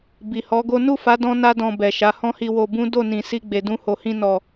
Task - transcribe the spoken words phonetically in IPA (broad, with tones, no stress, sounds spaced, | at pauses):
b i˨ h ɔ˨˦ ɡ o˦ n u˦˨ f a˨˦ d ɔ̃˦ n a˦ d ɔ̃˧ b ɛ˨ ʃ a˨˦ h ɔ̃˦ h i˧ w o˧ b ũ˦ d o˦˨ n ĩ˨ s i˧ ɡ͡b e˨ d ũ˧ h o˨ h ĩ˧ n ɔ˨